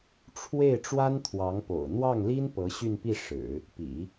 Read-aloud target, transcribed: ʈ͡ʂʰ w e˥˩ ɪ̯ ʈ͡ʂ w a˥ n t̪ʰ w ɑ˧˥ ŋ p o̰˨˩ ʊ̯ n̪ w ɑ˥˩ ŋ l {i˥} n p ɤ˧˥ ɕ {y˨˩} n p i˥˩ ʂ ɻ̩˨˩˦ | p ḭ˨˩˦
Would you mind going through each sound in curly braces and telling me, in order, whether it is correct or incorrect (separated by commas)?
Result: correct, incorrect